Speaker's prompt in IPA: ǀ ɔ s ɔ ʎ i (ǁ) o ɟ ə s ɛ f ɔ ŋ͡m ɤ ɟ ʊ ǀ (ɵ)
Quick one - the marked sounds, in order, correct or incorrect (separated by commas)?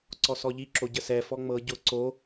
correct, incorrect